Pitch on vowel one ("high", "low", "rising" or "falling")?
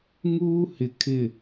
high